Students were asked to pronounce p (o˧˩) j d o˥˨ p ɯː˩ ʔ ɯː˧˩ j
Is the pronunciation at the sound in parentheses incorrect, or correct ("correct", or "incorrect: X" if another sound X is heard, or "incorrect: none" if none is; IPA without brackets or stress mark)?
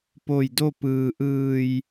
correct